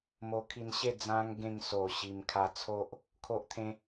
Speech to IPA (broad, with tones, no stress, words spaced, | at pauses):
mo˧kʰi˧nɕe˥˧ d͡zã˦ŋ ɡẽ˧ŋso˨˩ ɕi˧m kʰa˧t͡sʰo˦ʔ | kʰo˦ʔt̪ʰẽ˦